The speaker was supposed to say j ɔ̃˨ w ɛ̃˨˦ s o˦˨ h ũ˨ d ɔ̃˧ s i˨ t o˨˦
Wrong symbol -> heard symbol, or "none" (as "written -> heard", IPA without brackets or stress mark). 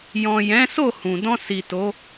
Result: w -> j